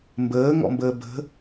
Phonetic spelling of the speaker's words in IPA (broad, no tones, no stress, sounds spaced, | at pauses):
m b əː ŋ ɔ̰ m b əː b ə̤